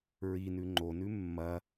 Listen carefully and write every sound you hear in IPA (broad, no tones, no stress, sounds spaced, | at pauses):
ɹ i n ʉ ŋ͡ǃ o n ʉ mː ɐ